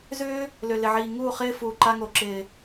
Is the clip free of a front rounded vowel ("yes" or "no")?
no